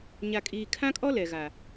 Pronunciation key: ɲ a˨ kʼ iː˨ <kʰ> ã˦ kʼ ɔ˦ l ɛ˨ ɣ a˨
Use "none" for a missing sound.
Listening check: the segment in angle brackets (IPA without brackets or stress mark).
kʰ